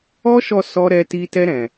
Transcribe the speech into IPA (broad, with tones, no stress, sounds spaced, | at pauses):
ɔ˦ ʃ ɔ˧ s ɔ˦ ɾ ɛ˦ t i˦ t ɛ˦ ɾ ɛ̃˧